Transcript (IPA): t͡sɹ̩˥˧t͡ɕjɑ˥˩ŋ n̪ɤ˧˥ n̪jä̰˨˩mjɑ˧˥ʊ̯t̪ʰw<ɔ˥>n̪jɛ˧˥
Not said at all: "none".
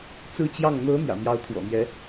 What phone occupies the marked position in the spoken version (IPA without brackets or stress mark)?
ɔ̰˨˩